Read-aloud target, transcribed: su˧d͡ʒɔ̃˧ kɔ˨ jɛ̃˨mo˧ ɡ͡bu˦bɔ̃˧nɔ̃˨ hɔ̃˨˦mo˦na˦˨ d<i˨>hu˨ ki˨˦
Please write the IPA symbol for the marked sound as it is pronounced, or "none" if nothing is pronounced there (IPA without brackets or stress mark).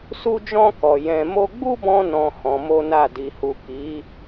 i˨